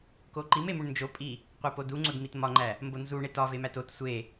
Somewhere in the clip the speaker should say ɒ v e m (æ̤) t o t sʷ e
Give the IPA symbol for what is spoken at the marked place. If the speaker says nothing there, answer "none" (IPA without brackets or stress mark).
æ